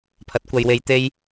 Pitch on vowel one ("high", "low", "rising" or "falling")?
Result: rising